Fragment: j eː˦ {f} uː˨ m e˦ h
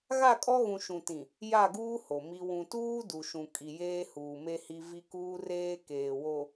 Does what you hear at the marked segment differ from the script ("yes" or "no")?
yes